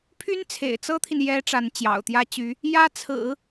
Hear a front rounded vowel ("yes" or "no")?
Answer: yes